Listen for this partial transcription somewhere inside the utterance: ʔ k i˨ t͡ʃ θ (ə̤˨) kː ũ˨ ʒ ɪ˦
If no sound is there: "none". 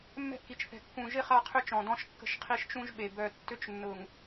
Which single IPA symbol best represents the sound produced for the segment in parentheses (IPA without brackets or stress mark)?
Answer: ɛ̤˨